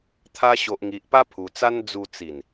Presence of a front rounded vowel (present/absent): absent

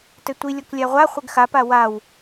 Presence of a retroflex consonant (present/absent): absent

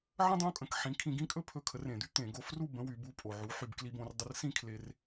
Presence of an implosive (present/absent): absent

